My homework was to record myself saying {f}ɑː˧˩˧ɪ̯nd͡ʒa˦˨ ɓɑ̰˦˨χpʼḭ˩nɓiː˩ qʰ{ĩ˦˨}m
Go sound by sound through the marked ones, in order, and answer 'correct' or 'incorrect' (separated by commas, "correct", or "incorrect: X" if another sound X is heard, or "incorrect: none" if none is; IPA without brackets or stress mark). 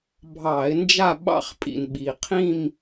incorrect: bʱ, correct